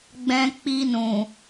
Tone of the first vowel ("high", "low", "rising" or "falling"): high